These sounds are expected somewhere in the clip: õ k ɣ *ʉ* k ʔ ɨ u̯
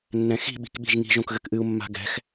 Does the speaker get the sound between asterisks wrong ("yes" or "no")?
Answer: yes